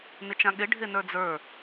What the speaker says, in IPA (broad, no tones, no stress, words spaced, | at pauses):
nɪt͡ʃãɠɪ ɖʱenə˞d͡zə˞